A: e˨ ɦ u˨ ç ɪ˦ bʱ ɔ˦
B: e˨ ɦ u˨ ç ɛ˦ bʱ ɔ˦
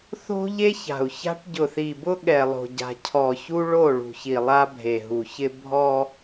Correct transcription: A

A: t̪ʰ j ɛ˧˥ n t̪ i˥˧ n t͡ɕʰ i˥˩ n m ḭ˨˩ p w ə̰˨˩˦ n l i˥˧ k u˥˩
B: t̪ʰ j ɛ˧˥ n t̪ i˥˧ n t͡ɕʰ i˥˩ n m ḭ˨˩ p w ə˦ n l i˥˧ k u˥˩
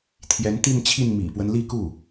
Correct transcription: B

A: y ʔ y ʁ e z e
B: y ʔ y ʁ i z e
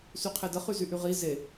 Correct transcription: B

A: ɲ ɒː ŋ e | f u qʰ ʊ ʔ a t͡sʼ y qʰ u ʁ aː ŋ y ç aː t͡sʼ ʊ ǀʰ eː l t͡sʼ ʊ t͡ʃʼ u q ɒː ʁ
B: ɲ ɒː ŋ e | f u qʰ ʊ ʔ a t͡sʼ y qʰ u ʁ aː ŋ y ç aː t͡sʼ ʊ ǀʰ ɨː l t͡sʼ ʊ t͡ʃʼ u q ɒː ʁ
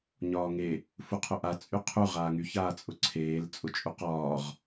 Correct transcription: A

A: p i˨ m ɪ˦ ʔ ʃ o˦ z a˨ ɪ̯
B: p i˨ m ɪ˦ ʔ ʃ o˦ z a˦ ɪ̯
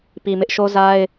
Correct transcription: B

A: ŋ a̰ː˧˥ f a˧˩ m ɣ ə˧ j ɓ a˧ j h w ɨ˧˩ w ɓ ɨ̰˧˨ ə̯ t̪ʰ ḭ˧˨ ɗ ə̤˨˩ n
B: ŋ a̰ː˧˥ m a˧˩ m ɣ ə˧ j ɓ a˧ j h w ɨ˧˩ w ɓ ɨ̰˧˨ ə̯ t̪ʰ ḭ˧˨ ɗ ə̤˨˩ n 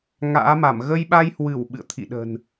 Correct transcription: B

